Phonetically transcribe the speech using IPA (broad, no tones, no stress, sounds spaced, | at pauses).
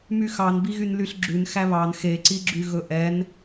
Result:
m y x ɑ n b i ɣ y n l y ɬ ɡ͡ǁ ʉ n x æ β ɑ n x e ǀ i ɡ͡ǁ y ɣ ɵ ʔ ɛ n